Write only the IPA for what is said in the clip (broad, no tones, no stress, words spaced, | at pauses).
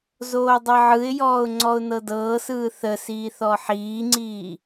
zoːdˤɤʕɯɪ̯jɔːʊ̯ ŋ͡ǀɔʊ̯nɤdɤːsɯː θə siːθɔħiːŋ͡ǀiː